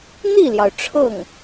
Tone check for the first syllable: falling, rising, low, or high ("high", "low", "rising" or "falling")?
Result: falling